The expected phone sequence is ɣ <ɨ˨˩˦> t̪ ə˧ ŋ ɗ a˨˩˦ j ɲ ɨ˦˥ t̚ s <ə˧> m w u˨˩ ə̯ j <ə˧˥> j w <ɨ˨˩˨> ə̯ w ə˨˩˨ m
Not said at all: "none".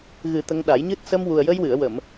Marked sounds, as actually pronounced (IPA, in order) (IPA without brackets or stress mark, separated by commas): ɨ˨˩˦, ə˧, ə˧, ɨ˨˩˨